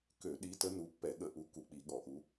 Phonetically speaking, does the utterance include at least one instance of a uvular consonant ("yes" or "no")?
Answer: no